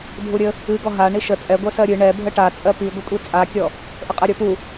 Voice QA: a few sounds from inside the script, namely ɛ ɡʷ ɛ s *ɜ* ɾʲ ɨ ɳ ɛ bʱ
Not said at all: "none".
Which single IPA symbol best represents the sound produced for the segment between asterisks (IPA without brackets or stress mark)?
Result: ɜ